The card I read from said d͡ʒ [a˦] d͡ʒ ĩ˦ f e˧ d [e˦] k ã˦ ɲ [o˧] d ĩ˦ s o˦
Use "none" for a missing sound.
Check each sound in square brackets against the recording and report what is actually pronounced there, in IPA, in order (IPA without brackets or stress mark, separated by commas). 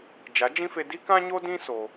a˨˦, i˦, o˦